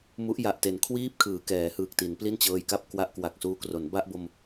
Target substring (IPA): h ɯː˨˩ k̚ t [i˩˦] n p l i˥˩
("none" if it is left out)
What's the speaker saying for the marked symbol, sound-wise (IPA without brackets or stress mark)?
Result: i˩˦